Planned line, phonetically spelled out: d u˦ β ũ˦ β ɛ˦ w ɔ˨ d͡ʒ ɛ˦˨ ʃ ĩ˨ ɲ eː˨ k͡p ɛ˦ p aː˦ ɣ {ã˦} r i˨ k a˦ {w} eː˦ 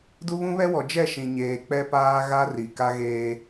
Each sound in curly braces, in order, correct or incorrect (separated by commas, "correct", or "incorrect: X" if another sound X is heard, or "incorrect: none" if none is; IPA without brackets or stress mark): incorrect: a˦, incorrect: ɣ